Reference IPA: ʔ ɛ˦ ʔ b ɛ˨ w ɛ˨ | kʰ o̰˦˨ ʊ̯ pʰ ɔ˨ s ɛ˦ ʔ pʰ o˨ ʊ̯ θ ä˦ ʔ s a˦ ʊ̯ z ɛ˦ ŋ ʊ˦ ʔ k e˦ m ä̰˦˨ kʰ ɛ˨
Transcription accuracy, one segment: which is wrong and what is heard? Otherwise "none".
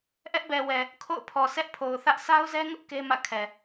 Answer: none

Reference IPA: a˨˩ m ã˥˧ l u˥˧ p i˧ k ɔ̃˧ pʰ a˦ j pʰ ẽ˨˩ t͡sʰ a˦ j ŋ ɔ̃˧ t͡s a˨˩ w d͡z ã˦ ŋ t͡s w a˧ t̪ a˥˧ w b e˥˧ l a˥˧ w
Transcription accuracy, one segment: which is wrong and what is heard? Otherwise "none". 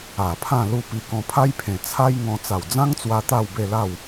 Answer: m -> pʰ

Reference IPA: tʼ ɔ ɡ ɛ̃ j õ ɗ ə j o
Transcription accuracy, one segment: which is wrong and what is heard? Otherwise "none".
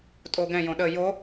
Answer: ɔ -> o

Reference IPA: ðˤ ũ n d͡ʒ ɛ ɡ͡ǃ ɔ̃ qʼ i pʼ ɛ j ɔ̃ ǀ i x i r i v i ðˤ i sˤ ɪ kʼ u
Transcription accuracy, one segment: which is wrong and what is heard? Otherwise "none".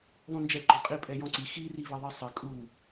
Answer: none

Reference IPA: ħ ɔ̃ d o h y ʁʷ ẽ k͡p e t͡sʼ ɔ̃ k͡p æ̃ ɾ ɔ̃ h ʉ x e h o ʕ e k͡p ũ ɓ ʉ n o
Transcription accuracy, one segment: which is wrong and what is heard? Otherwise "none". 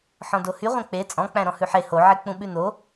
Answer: x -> ħ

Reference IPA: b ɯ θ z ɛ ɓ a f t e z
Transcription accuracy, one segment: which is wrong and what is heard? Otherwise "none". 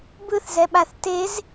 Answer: f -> θ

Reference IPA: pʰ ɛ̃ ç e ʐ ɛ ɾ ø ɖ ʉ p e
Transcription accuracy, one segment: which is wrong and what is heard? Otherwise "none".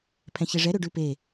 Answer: none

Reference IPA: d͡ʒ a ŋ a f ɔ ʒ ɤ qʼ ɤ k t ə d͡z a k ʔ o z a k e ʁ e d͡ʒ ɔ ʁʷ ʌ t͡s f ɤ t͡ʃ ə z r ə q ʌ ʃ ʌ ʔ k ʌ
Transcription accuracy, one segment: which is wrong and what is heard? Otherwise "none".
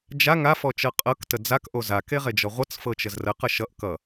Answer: ʒ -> t͡ʃ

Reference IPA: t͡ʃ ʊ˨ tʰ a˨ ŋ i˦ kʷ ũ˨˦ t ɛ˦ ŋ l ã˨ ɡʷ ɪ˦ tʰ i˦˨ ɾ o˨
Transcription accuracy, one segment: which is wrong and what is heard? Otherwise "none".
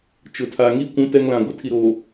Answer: none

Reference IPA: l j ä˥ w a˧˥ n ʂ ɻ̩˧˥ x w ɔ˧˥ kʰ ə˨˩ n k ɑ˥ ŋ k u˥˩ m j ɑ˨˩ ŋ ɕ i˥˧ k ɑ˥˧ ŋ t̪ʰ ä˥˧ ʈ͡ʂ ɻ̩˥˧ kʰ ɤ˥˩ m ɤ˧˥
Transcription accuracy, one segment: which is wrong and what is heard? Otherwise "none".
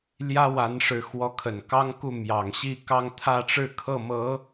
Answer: none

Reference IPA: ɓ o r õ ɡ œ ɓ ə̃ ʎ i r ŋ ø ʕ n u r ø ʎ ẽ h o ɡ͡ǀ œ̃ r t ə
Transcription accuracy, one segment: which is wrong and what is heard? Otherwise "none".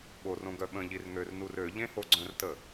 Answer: ʕ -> r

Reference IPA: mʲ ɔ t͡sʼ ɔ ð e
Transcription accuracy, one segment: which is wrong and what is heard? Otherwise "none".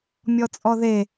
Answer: none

